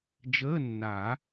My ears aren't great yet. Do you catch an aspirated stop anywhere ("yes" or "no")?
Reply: no